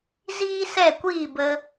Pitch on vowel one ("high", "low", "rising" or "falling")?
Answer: high